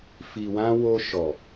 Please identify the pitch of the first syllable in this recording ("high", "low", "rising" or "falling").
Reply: low